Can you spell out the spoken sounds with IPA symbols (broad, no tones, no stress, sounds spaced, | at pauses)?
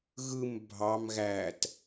ɣ ɯ m bʱ ɑ m ɣ æ t